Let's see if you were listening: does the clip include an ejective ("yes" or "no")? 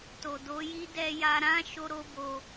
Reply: no